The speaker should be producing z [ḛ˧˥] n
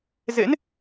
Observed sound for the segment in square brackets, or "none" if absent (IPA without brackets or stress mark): ḛ˧˥